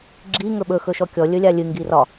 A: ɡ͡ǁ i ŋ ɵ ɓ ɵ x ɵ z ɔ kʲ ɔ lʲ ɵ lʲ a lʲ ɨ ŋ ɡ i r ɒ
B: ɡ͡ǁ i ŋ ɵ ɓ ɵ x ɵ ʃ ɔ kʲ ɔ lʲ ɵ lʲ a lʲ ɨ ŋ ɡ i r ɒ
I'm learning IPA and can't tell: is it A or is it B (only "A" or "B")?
B